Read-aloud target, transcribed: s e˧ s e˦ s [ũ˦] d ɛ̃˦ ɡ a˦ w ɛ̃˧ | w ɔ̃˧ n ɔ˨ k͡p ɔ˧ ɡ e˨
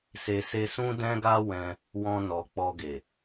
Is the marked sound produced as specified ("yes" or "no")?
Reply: yes